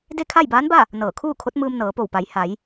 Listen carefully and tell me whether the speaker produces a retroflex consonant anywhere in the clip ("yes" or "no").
no